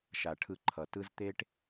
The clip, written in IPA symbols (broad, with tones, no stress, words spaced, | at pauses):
ʃa˩ʈʰɯ˨ǃʰʌ˩ tɯ˦z t̪e˥ʈ